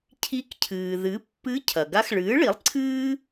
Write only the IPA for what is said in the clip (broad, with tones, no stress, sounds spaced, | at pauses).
cʰ i˧˥ k cʰ ɨː˩ ð ɨ˩˥ pː ɨ˧˥ cʰ ɐ˩ ɡ a˧˥ x ɭ ɨː˩˥ ɭ i˩˥ lˠ ǀʰ ɨː˥